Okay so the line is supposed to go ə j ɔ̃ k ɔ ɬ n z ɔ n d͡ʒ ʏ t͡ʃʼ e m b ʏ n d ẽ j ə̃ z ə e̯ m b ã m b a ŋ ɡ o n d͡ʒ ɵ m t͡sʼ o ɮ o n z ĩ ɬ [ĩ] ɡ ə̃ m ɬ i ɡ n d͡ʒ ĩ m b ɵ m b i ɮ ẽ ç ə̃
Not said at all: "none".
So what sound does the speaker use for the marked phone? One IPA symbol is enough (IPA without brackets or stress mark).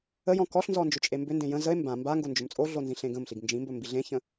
ẽ